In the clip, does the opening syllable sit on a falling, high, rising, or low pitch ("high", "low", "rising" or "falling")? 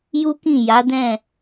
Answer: high